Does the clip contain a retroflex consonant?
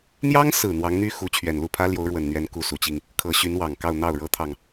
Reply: yes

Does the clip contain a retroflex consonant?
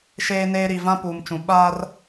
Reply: no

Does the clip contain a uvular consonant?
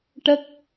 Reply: no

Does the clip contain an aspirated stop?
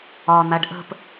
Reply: no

